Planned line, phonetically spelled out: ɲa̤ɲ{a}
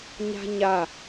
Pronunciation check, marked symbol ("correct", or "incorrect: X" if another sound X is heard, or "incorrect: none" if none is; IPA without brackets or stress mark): correct